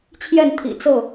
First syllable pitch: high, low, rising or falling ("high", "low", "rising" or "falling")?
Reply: falling